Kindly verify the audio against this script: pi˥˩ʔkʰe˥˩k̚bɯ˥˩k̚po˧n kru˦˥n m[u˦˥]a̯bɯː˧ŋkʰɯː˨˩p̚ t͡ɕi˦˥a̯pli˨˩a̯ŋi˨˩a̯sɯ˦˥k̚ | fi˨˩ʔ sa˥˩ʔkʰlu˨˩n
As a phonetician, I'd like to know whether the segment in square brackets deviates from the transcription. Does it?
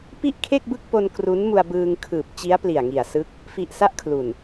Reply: yes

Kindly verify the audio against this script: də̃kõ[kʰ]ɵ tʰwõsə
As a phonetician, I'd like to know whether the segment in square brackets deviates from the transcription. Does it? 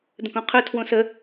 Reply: yes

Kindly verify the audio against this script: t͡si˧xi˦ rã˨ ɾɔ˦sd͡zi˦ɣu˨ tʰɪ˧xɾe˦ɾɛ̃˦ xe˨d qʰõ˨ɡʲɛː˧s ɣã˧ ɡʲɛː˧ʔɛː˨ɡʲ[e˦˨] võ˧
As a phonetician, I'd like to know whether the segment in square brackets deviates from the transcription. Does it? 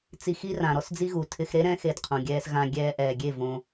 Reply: no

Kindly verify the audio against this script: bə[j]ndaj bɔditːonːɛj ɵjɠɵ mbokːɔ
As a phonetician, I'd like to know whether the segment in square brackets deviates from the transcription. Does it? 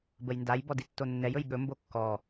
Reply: no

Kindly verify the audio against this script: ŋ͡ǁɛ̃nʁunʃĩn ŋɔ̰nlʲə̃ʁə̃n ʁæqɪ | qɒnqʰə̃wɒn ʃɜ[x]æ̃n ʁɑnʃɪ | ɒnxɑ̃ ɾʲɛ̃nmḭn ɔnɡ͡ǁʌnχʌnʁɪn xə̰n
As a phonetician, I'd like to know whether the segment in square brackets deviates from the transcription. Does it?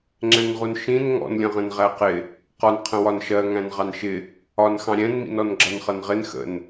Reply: yes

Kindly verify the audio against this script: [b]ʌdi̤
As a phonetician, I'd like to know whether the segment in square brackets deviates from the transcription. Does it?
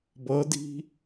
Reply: no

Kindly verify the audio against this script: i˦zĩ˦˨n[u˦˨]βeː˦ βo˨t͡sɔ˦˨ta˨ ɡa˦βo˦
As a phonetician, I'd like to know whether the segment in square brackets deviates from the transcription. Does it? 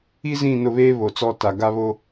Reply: yes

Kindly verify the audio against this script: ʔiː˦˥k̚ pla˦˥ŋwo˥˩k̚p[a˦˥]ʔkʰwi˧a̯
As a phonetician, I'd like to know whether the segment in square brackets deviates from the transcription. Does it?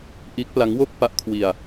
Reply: no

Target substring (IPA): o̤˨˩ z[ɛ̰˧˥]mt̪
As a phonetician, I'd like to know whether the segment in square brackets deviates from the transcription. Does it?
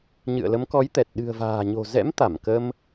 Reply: no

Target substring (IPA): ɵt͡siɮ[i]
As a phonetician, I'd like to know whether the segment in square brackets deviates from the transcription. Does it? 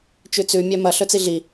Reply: no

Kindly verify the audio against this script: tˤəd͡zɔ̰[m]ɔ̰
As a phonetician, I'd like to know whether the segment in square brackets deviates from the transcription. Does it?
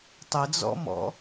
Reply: no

